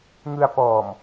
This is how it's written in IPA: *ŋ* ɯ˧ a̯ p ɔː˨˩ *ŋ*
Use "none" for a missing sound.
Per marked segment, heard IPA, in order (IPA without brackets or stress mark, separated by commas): ŋ, m